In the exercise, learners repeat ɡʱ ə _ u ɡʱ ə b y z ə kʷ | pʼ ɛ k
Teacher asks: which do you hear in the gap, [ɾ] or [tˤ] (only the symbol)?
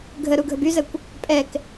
ɾ